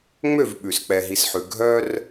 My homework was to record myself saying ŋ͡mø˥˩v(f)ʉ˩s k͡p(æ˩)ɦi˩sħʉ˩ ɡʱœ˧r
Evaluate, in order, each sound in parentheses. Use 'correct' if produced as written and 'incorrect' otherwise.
incorrect: ɓ, incorrect: ɛ˩

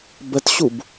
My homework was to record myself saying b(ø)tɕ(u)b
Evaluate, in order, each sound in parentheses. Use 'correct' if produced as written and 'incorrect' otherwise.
incorrect: ə, correct

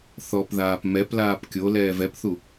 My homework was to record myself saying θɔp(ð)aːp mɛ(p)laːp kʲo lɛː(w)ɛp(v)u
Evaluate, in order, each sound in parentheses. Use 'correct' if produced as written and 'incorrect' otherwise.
correct, correct, incorrect: v, incorrect: θ

